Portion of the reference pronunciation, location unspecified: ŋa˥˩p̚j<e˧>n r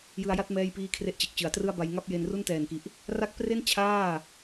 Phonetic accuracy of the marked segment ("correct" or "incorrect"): correct